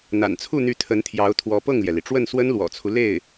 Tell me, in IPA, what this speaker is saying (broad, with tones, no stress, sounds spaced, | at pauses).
n̪ a̰˨˩ n t͡sʰ u˥˩ n̪ y˧˥ t̪ʰ ə˧˥ n t̪ʰ j ɑ˧˥ ʊ̯ t̪ʰ w ɔ˧˥ p ɤ˥˩ ŋ l j ɛ˩ l i˩ ʈ͡ʂ w ə˥˩ n s w ə˥ n l w ɔ̰˨˩ t͡sʰ u˦ l e˥˩ ɪ̯